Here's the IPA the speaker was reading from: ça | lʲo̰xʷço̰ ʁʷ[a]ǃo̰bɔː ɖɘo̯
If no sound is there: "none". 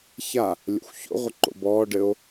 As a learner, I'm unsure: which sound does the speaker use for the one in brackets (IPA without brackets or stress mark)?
ə